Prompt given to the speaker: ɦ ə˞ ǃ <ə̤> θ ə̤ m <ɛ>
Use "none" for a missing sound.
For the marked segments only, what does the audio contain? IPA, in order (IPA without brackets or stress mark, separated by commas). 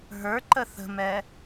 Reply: ə, ɛ